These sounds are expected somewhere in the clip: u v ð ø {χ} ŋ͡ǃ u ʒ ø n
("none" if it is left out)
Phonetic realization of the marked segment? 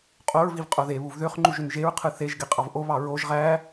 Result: χ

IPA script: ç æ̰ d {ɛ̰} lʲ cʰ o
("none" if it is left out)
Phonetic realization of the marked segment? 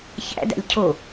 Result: æ̰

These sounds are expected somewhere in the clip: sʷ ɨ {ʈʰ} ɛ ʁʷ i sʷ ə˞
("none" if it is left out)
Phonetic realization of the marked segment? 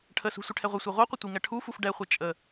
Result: ʈʰ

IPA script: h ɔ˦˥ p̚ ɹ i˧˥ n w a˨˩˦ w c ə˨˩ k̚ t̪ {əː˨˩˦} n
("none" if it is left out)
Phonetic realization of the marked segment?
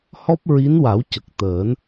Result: əː˨˩˦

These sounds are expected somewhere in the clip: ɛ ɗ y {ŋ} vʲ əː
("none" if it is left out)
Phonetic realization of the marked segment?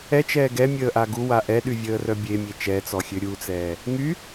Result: none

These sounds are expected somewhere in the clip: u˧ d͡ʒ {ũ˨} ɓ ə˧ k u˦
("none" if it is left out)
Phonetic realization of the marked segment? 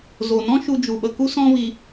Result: u˨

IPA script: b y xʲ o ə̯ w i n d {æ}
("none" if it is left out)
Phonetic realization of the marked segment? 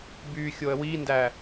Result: æ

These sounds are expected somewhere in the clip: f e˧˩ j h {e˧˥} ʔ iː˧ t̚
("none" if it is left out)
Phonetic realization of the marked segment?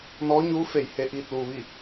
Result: e˧˥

